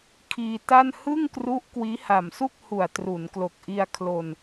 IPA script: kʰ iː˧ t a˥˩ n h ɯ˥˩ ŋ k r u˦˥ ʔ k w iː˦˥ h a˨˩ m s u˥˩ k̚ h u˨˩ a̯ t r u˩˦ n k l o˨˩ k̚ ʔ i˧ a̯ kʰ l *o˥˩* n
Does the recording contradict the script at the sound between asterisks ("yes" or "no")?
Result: yes